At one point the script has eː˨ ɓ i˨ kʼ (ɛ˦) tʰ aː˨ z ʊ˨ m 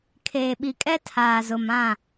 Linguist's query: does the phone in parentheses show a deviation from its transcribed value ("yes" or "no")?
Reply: no